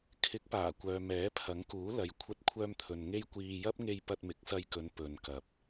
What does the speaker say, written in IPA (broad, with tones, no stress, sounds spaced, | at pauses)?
kʰ ɪ˨˥ k̚ p aː˨˩ kʷ œː˨ m ɛː˨˥ pʰ ɐ˨˥ ŋ k uː˨˥ l ɐ˨˧ j kʷʰ ɐ˧ t̚ kʷʰ œː˧ m t̪ʰ ɵ˨ n ŋ e˥ j kʷ iː˧ j ɐ˥ p̚ ŋ e˧ j p ɐ˧ t̚ m ɪ˨˥ k̚ s ɐ˧ j k ɵ˨˧ n p ɵ˨ n k ɐ˨ p̚